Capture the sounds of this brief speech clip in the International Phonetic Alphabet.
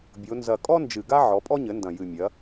bʲ o˩˧ n z ɐ˨˩ kʼ ɔ˥ n d͡ʒ ɨ˨˩ ɡ a˥ ʕ ɔ˩˥ pʼ ɔ˥ ɲ ɘ˩˥ n d ɐ̃˨˩ j ɨ˨˩ mʲ ɐ˩˧

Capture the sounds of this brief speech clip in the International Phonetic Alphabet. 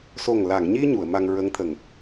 s o˨˩ ŋ l a˨˩˨ ŋ ɲ i˧ ɲ u˨˩˨ ə̯ m a˧ ŋ ɹ ə˧˥ ŋ t̪ʰ ə˨˩˨ ŋ

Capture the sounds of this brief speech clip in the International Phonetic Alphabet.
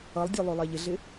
ʌ lˠ dʲ ø lˠ ø lˠ ɛ ʎ ɪ ɮ ɪ

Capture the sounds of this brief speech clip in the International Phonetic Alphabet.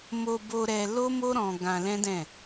m o˧ b o˧ ɾ ɛ˧ l o˦ m o˦ ɾ ɔ̃˧ ɡ ã˧ l ɛ̃˦ d ɛ̃˦˨

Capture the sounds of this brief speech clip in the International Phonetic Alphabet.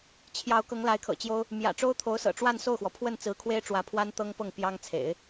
t͡ɕʰ j ɑ˧˥ ʊ̯ k ɤ˧˥ ŋ l a˧˥ ɪ̯ kʰ ɤ̰˨˩ t͡ɕ j o˥ ʊ̯ | m j ä̰˨˩ ʈ͡ʂ o˥ ʊ̯ t̪ʰ o˧˥ ʊ̯ s ɤ̰˨˩ ʈ͡ʂ w a˥˧ n s o˥˩ ʊ̯ x w ɔ˩ pʰ w ə˥˩ n t͡s ɹ̩˧˥ kʰ w e˥ ɪ̯ ʈ͡ʂ w ä˧˥ pʰ w a˥ n t̪ ɤ˥ ŋ p ɤ˥˩ ŋ p j ɑ˥ ŋ t͡sʰ ḛ˨˩˦ ɪ̯

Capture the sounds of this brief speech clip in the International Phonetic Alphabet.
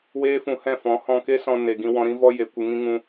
w eː˦ f ũ˧ h ɛ̃˦˨ f ɔ̃˨˦ h ɔ̃˧ k e˦ s ɔ̃˧ n e˨ ɡ ĩ˧ w ɔ̃˧ ɾ ĩ˦ v ɔ˦ j e˨ kʷ ɨ˨ ŋ ĩ˧ ŋ ũ˧

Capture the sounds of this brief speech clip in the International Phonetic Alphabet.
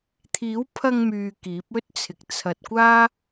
t̪ʰ iː˨˥ w pʰ ɐ˧ ŋ m yː˧ k iː˨˥ p̚ ɵ˥ t̚ t͡sʰ ɪ˨ k̚ t͡sʰ ɐ˨ t̚ kʷ aː˥

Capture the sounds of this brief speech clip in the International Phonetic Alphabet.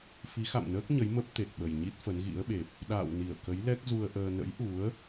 f i˨˦ x a̰˧˨ m n əː˦˥ k̚ ɲ ə˨˦ j m ə˦˥ p̚ t̪ e˨˩ t̚ ɓ ə˨˩ j ɲ i˦˥ t̚ f ə˨˦ n ɣ ḭ˧˥ ə̯ ɓ e˨˩ p̚ | ɗ a̰ː˧˨ w n i˧˩ ə̯ k ə˨˦ j l ɛ˦˥ k̚ z u˧ ə̯ ʔ əː˧ n ə̰˧˥ j ʔ u˨˦ ə̯

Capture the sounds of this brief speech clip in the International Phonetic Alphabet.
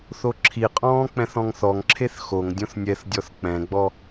θ o ǁʰ i qʼ ɔ̃ː k͡p ɛ̃ θ ɔ̃ ŋ θ ɔ ŋ ǁʰ e θ x o ŋ dʲ õ θ nʲ ɛ θ dʲ ɔ θ k͡p ɛ̃ ɡ͡b ɔ

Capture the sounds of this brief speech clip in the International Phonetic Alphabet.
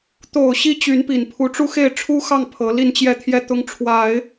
t̪ o˨˩ ʊ̯ ɕ i˧˥ t͡ɕ y˧˥ n p i˨˩ n pʰ u˧˥ ʈ͡ʂ u˥ x e˥˩ ɪ̯ ʈ͡ʂʰ u˥ x ɑ˥˩ ŋ pʰ ɤ˧˥ l i˥˧ n t͡ɕ j ɛ˥˧ t̪ʰ j ɛ˥˩ t̪ ʊ˧˥ ŋ ʈ͡ʂʰ w a˨˩˦ ɪ̯

